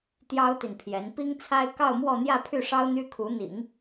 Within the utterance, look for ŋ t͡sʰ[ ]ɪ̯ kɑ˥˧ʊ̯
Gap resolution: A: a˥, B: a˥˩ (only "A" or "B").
A